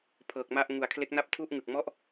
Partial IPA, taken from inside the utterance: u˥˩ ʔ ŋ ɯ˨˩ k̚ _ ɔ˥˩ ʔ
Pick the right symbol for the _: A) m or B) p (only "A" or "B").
A